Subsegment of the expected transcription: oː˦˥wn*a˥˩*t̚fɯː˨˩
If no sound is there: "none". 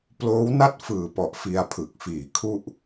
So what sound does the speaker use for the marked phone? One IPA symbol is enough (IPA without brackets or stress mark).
a˥˩